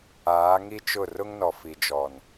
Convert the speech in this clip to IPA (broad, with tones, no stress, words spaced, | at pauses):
aː˨˦ŋi˦t͡ʃʊ˦˨ rʊ˦ŋnɔ˨fi˨d͡ʒɔ˨n